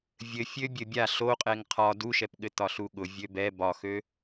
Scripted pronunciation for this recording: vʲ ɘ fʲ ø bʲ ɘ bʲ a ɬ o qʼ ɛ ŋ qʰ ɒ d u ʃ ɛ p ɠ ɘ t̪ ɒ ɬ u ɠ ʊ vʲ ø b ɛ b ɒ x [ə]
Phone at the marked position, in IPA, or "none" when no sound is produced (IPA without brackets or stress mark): ø